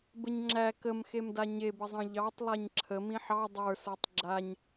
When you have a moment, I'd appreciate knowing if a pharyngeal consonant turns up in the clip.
yes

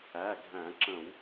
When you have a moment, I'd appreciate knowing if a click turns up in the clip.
yes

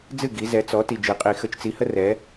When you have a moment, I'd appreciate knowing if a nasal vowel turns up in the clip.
no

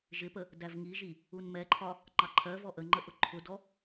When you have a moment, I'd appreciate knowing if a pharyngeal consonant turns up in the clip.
no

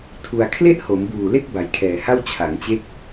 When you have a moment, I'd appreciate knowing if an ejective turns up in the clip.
no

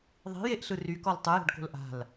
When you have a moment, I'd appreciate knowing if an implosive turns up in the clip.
no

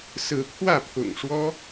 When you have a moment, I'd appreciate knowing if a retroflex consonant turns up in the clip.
yes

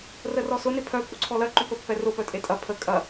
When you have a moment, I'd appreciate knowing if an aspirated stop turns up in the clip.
yes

